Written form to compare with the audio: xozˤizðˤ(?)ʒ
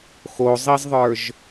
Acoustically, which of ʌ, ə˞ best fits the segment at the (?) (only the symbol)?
ə˞